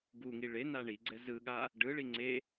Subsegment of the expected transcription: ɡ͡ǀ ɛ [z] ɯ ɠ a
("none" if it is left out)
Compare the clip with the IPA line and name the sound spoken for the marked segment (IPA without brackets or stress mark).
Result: z